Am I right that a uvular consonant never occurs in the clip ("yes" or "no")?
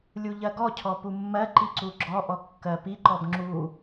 yes